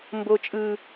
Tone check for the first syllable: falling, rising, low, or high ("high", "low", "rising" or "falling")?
high